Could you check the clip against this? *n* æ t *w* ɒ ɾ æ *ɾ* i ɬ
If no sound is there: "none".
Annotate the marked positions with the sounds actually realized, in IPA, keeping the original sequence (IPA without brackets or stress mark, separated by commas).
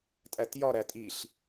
tʼ, j, tʼ